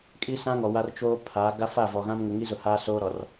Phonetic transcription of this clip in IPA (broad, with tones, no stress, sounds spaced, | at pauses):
kʼ i˦ s ã˦ ŋ ɔ˨ w a˦ r t͡ʃ oː˦ pʰ a˨˦ ɡ a˦ f a˦˨ v ɔ˨ ɣ ã˦ m ŋ ʊ˨ ŋ i˦ z ʊ˨ h a˦ s oː˦ ɾ ɔ˨ r